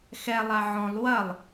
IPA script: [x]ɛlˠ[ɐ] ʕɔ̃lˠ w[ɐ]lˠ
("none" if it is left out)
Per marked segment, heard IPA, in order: x, a, ɐ

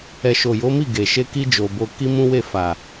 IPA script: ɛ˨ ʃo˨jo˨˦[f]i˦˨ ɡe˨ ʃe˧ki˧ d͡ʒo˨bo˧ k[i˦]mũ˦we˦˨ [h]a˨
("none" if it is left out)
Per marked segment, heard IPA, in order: m, i˦, f

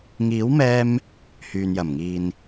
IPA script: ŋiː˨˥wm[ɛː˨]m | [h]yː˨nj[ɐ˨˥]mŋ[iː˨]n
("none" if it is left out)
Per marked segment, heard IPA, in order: ɛː˧, h, ɐ˨˩, iː˨

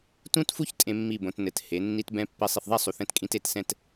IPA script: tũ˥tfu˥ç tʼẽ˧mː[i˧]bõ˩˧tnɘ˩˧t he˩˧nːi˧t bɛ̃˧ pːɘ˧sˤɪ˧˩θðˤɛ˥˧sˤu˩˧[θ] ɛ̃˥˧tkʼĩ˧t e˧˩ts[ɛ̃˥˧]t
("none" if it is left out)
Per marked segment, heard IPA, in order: i˧˩, θ, ɛ̃˥˧

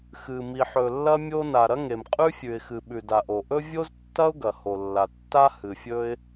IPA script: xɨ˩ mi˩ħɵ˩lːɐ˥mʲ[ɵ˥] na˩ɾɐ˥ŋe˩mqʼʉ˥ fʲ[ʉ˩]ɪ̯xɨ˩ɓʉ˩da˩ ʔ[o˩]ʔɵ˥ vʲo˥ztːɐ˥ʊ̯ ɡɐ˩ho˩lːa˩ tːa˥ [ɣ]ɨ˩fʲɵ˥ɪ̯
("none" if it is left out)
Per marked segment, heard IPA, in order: o˥, ʉ˩, o˩, h

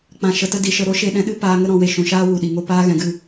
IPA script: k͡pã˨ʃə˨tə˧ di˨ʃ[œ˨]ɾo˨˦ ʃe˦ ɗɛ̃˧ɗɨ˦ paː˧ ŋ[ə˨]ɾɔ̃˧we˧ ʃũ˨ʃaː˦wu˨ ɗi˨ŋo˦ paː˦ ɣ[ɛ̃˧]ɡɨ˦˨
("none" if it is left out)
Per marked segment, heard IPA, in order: ə˨, ə˦, ɛ̃˧

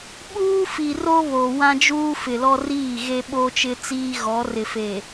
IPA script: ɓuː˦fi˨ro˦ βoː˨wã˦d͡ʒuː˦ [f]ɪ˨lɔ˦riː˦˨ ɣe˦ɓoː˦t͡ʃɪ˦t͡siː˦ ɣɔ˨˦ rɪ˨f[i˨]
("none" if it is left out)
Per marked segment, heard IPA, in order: f, e˨

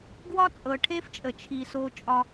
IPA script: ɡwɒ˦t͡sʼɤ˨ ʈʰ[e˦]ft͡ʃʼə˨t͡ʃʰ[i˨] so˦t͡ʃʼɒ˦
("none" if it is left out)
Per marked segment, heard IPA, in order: e˦, i˨

